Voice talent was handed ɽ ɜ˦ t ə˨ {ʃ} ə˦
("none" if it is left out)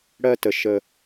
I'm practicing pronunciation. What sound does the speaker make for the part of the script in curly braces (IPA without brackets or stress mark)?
ʃ